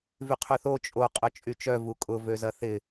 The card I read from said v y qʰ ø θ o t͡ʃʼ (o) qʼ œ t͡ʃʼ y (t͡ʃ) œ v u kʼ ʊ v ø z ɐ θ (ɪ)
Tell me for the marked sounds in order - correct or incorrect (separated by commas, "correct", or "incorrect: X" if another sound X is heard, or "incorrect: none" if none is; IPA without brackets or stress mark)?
correct, correct, correct